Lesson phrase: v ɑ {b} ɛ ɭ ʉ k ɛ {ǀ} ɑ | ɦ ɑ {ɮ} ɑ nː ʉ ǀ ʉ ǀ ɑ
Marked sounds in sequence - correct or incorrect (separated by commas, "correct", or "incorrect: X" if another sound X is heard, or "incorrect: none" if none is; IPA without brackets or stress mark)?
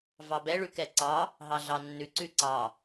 correct, correct, correct